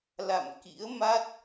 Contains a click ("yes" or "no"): no